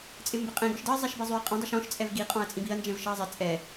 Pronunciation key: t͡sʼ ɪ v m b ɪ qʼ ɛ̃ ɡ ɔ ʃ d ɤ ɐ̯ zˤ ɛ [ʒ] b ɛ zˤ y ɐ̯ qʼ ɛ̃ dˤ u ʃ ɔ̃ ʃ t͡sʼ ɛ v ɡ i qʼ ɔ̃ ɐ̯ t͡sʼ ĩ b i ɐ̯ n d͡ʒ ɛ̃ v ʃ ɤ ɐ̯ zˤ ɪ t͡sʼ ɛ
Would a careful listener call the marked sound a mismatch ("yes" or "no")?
yes